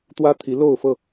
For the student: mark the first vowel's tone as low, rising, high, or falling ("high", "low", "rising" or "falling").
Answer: high